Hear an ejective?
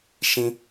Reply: no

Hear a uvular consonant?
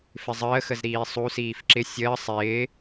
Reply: no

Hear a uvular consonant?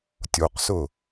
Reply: yes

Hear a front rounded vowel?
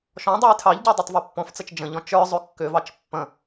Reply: yes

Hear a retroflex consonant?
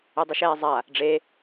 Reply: yes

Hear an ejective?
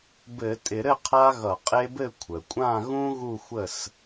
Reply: yes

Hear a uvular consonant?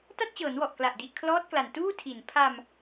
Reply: no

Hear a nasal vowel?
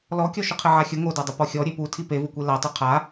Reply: no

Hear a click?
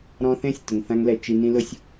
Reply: no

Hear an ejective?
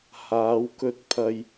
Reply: no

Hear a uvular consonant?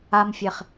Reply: yes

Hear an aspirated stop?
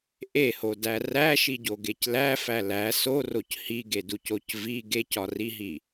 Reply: no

